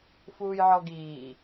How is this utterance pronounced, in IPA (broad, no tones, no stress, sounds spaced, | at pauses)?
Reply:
f uː j ʕ ɔ ɡ iː